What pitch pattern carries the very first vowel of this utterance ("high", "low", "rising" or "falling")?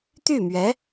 falling